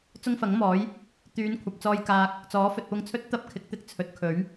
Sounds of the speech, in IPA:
t͡s ʊ˥ ŋ f ɐ˨˥ ŋ m ɔː˨˥ j | t̪ yː˨˧ n kʷʰ ɐ˨ p̚ t͡s ɔː˧ j k aː˧ k̚ | t͡s ɔː˨˥ f ɵ˨ t̚ p ʊ˧ ŋ t͡sʰ ɵ˥ t̚ t̪ ɐ˥ p̚ kʰ ɪ˨˥ k̚ t̪ ɪ˧ k̚ t͡sʰ ɵ˨˥ t̚ kʰ ɵ˨˥ ɥ

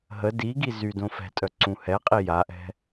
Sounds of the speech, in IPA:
ɦ ə d i ɡ i z y d õ f ɛ̤ tʼ œ ǀ ũ h ɛ qʼ i j a ʔ ɛ̤

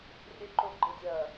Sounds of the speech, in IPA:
rʲ ə ǃ o ɡ͡ǃ ɪ dʲ ɐː

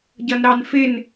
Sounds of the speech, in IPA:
ɟ ʌ n ɾ ɑ n f ɪ n

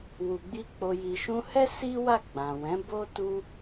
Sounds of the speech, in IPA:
w u˨ ɡ͡b i˧ k͡p o˨ j i˨ ʃ ũ˧ h ɛ˦ s i˦ w a˦˨ ɡ͡b ã˨ w ɛ̃˨˦ b o˦ t u˦

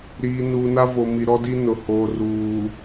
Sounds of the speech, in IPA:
ɾ iː˨ n uː˨ n a˦ v o˨ m i˨ ɾ ɔ˦ d i˦ n ʊ˨ h oː˨ r uː˨

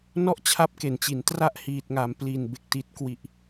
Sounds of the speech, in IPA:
n ɔ˥˩ ʔ t͡ɕʰ a˦˥ p̚ k e˩˦ n t͡ɕ i˩˦ n t r a˥˩ ʔ h iː˨˩ t̚ ŋ a˩˦ m p l i˨˩ n b e˨˩ k̚ t i˨˩ t̚ k w i˨˩ ʔ

